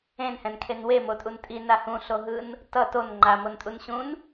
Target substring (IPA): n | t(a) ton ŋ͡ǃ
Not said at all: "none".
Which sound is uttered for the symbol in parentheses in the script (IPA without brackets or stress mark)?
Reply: ʌ